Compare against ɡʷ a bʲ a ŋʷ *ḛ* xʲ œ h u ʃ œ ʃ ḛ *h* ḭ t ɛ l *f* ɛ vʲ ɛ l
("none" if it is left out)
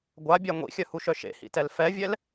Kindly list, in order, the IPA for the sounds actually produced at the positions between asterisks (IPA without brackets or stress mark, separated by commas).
ḭ, h, f